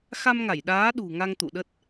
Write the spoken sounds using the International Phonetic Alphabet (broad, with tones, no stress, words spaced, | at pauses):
xa˧mŋa˧˩jɗaː˨˦ ɗṳ˨˩ŋa˧ŋ t̪ṵ˧˨ɗə˦˥t̚